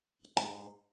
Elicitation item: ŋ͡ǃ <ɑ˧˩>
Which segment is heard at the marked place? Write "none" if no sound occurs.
ɑ˥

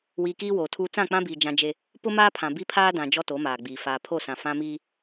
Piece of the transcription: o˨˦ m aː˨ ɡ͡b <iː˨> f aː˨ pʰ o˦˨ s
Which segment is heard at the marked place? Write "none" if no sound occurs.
iː˨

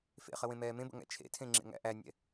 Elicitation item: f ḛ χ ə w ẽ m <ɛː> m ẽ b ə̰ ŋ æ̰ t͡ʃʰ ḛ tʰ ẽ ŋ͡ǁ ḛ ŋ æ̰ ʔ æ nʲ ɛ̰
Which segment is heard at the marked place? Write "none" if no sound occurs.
ɛː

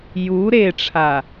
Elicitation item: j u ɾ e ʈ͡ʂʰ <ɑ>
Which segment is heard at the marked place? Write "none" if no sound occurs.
a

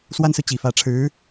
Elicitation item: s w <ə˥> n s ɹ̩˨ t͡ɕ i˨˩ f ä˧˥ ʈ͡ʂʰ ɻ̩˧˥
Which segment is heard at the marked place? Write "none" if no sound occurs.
a˥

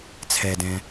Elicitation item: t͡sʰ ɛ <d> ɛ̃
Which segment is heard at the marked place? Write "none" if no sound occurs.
d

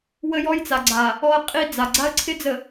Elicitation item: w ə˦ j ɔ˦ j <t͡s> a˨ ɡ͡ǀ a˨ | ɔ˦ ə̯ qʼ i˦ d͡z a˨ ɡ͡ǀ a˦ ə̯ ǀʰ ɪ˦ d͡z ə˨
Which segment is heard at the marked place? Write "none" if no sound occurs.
t͡s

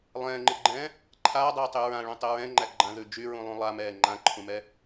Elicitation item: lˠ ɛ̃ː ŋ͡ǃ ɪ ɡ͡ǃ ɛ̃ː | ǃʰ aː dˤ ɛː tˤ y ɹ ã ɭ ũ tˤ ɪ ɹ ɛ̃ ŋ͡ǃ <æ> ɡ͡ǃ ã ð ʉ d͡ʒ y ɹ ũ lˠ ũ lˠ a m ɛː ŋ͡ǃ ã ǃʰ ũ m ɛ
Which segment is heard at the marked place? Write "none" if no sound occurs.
æ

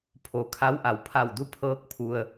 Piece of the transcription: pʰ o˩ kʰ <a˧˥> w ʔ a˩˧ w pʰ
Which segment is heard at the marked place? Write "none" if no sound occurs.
a˧˥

